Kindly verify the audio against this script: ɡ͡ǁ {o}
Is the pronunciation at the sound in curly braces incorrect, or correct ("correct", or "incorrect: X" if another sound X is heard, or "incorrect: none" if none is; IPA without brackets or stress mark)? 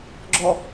incorrect: ɔ